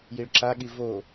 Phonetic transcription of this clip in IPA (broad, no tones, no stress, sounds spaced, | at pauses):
j i ɭ ǁ a ɠ i v o